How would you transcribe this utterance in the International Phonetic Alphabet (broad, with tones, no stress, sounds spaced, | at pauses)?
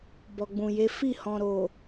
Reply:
b ɔ˨ ɡ͡b ũ˨ j e˨˦ f i˦˨ h ɔ̃˨ ɾ o˨